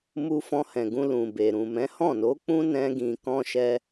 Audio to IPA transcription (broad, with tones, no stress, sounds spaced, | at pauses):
m u˧ f ɔ̃˧ h ɛ̃˨ ɡ ũ˧ l ũ˨ b e˨ ɾ ũ˨ m ɛ̃˨˦ h ɔ̃˦˨ n o˨˦ k͡p ũ˦ n ɛ̃˦ ɡ ĩ˧ k ɔ̃˧ ʃ ɛ˧